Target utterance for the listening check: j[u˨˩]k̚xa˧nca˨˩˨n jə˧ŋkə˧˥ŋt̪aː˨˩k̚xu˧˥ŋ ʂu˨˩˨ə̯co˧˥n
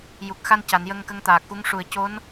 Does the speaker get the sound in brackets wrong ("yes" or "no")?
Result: no